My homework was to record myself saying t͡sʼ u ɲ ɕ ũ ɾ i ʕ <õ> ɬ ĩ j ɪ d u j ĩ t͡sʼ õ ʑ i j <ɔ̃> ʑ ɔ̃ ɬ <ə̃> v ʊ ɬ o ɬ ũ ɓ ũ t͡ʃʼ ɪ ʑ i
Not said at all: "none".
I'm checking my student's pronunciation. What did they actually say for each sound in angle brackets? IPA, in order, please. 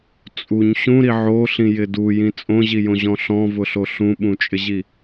o, õ, ɔ̃

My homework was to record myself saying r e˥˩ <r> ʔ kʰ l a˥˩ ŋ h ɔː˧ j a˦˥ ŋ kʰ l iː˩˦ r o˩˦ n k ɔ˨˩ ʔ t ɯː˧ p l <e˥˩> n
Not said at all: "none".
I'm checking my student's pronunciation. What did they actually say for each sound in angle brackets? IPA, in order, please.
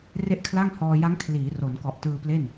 none, e˥˩

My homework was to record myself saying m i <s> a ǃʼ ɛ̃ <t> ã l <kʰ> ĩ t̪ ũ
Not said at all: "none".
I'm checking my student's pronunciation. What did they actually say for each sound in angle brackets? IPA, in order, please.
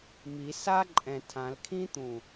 s, tʰ, kʰ

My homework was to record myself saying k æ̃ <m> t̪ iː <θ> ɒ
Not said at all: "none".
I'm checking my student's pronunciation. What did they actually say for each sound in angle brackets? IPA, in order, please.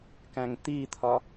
ŋ, t̪ʰ

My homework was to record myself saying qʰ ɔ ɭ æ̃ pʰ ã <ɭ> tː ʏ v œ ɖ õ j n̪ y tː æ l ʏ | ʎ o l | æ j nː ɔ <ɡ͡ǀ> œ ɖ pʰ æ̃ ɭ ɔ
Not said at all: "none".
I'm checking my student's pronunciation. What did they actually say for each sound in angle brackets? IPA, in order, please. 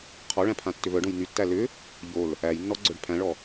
none, ɡ͡ǀ

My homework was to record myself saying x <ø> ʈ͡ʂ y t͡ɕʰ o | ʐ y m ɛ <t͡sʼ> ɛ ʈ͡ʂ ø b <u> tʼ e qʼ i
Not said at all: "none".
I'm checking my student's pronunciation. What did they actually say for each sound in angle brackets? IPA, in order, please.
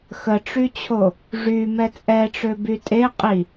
ə, t͡sʼ, y

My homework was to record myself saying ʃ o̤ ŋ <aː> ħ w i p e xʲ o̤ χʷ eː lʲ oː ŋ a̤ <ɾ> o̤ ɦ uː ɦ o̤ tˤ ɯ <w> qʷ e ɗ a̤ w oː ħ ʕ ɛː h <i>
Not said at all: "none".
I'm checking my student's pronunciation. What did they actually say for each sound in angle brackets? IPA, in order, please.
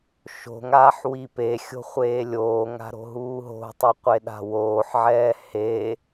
aː, ɾ, none, e

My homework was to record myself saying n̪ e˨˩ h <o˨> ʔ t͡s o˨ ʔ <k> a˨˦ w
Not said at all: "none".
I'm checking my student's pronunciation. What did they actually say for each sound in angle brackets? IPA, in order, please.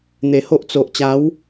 o˦, t͡ɕ

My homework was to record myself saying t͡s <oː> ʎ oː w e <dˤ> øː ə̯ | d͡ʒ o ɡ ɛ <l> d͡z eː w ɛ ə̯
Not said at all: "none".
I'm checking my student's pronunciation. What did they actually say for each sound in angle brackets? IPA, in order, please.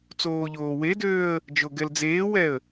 oː, d, l

